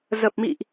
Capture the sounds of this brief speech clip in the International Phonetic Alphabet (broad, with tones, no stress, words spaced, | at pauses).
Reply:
zə˨˩p̚mḭ˧˨ʔ